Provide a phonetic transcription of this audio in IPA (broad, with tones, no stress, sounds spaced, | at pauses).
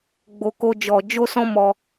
ɡ͡b o˧ k o˦ d͡ʒ ɔ˧ d͡ʒ o˦ s ɔ̃˦ m ɔ˧